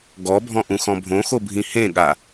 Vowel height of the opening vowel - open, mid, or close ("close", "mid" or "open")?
mid